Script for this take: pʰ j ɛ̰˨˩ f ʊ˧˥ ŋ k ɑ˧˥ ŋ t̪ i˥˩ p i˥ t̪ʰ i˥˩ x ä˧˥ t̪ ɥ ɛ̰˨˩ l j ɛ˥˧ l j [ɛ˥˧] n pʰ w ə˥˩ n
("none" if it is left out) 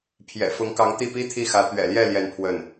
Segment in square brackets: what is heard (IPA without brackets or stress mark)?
ɛ˥˧